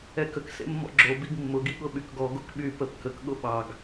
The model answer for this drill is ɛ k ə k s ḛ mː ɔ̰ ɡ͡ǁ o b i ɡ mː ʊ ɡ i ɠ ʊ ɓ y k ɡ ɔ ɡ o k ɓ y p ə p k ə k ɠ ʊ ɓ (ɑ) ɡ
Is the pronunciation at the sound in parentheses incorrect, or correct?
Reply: correct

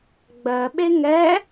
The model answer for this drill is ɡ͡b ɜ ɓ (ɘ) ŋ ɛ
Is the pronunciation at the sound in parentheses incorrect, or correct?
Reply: incorrect: e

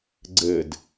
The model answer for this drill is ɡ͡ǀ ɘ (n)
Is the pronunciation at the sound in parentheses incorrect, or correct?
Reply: incorrect: d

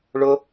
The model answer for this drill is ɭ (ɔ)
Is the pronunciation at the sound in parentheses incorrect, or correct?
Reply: incorrect: ʊ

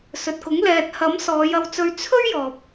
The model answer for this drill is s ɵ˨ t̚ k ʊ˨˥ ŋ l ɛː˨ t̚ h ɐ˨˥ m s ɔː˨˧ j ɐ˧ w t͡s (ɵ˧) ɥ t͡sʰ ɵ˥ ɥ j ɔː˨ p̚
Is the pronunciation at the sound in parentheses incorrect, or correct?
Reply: correct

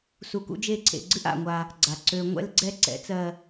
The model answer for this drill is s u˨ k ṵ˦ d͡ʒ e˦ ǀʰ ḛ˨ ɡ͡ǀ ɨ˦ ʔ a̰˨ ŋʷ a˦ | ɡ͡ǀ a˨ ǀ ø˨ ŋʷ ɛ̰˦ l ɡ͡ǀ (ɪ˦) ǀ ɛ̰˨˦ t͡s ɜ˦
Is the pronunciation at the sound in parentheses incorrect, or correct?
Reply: incorrect: ɛ˦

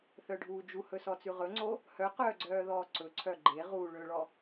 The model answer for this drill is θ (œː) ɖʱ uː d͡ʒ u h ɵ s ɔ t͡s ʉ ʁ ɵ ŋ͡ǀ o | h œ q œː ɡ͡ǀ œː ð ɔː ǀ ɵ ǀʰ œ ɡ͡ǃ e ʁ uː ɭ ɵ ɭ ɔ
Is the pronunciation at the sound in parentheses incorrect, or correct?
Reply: incorrect: œ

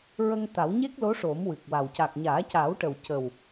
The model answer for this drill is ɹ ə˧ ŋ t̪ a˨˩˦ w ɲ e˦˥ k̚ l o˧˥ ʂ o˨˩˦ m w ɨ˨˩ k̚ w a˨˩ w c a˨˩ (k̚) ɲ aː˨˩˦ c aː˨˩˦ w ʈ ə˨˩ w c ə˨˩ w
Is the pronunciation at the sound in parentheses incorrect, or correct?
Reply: correct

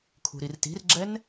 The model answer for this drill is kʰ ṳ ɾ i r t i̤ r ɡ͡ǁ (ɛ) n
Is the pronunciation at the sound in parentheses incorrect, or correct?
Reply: correct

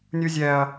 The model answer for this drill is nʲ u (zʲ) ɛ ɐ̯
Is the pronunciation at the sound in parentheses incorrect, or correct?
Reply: correct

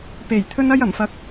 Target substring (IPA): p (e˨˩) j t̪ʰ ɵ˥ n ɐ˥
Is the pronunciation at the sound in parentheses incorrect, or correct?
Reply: correct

